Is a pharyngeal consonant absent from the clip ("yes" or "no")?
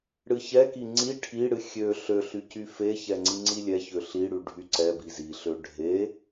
yes